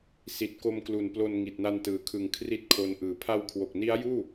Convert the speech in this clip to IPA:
s i˨˩ t̚ k o˧ m k l u˨˩ n p l o˧ n ŋ i˨˩ t̚ n a˧ n t ɯː˩˦ kʰ ɯ˨˩ ŋ kʰ r i˥˩ t̚ kʰ o˧ n ʔ ɯː˨˩ pʰ a˧ w kʰ w o˨˩ k̚ n i˦˥ a̯ j uː˥˩

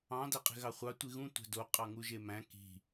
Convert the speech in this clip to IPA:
ɑ̃ d æ qʼ e̤ ɣ ɑ χʷ ɑ tʷ i ɣ ũ tʷ æ̤ d o qʼ ɑ ŋ u ʒ e m æ̃ k i̤

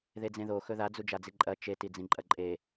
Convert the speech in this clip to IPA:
ð e d͡z ẽ ð o x ɵ ð a d͡z u d͡ʒ a d͡z i ǃʼ ɐ t͡ʃ e t i d͡z ĩ ǃʼ ɐ ǃʼ e

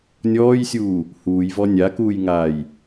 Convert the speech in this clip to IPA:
nʲ ɔː j sʲ uː | h uː j v ɔ nʲ a k uː j ŋ aː j

